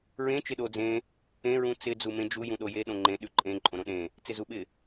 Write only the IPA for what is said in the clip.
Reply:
ɹ ẽ t͡ʃ ɪ ɗ o d͡z ẽ | ẽ ɹ ũ t͡s ɪ d͡z u m ẽ d͡ʒ u j ũ ɗ o j e ɗ õ ŋ͡ǃ ẽ ɗ ʉ ǃʼ ẽ ǃʼ õ ɾ õ ɗ ẽ | t͡s ɪ z u ɓ ɪ

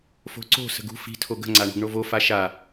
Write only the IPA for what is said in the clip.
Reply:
f o̤ ǀ o̤ s ə̤ ɡ ṳ f i̤ tʰ o ɡ ə̤ ŋ͡ǀ a ɳ o̤ ɡ ɳ o v o f a ʃ a

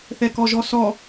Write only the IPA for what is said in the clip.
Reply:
θ ɛ k ɔ ʒ ɔ s ɔ

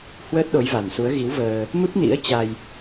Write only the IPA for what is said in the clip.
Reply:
h w əː˦˥ t̚ ɗ o˨˦ j v a˨˩ n s u˨˦ ə̯ ɣ i˨˦ w v əː˧ | m ɨ˦˥ p̚ n ḭ˧˥ ə̯ t͡ɕ a˧ j

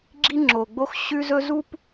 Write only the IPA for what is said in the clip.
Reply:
ɡ͡ǁ i˦ ŋ͡ǁ o˨ ɡ͡b o˦ x ɕ ʉ˦ z ɵ˦ z u˦ p

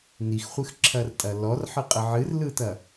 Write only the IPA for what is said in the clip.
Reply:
n i x χʷ ɨ x ǁʰ ɐ r tʼ ɐ l ɔ r ħ ɨ qʼ ə ʕ ɨ r l ɯ t ɐ

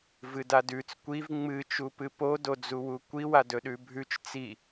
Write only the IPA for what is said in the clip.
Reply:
v ɨ d a d ʉ t͡s kʷ i v ŋ͡m ɨ t͡ʃ u p ɨ p o d o d͡z u w u kʷ i w a d ɵ ɗ ʉ bʱ ʉ t͡ʃ t͡s i

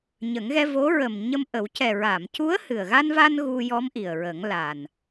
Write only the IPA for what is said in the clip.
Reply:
ɲ ə˨˩˦ ŋ ɣ ɛ˧ v o˧˥ ɹ ə˨˩ m ɲ ə˧ m ʔ ə˨˩˦ w c ɛ˨˩ ɹ a˨˩˨ m c u˧˥ ə̯ h ɨ˨˩ ə̯ ɣ a˧ n v a˧ n ɣ u˧ j ɔ˧˥ m ʔ i˨˩ ə̯ ɹ ə˨˩˦ ŋ l a˨˩ n

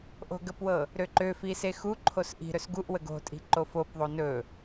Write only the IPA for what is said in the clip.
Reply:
ʔ o̤ ɡ ə p w ɤ | ɾ ø ǃ ø f i s e x u ǃʰ o s ʔ i̤ ɾ ɵ s ɡ u ʔ w ə ɡ o̤ tʼ i̤ ǃ o f o p ðˤ o n ɵ

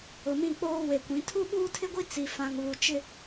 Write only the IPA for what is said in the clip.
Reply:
ʊ˨ m ĩ˦˨ k͡p oː˦ w e˨ kʷ ĩ˨˦ tʰ u˦ ɓ uː˦ tʰ ɪ˦ ɡʷ i˦ t͡s i˨ f ã˨ ŋ β u˨ t͡ʃ ɪ˦

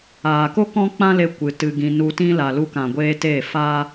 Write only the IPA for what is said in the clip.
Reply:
aː˨ k o˦ k ɔ̃˦ k͡p ã˦ l e˧ kʷ ɨ˨ t ɨ˧ ɡ ĩ˧ n u˧ t ĩ˦ l a˨ l u˧ k ã˨ ɡʷ eː˧ t e˦˨ f a˦

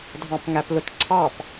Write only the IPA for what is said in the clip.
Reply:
dʱ ɑ̃ p ŋ æ p l ʊ t ǀʰ ɑ p

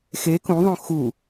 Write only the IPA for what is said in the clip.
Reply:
x e k ũ ðˤ õ x u

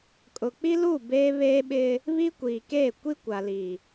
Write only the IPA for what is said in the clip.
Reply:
kʼ ʊ˨ k͡p i˦ l uː˦˨ b eː˦ β eː˦ ɓ ɪ˦ | β i˦ kʷ iː˨ k eː˦˨ kʷ i˦ kʷ a˨ l iː˨

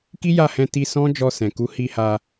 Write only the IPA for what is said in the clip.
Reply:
k i˦ j a˦˨ h ɛ̃˧ t i˧ s ɔ̃˦ d͡ʒ ɔ˧ s ɛ̃˨ k u˨˦ h i˧ h a˧

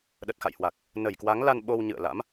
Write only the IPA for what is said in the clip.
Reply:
ɗ ə˨˩ t̚ x a̰˧˨ j h w a˨˩ k̚ | n ə˧˩ j k w a˨˦ ŋ l a˧ n ɓ o˧ w ɲ ɨ̰˧˨ ə̯ l a̰˧˥ m

